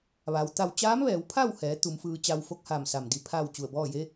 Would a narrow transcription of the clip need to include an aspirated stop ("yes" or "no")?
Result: yes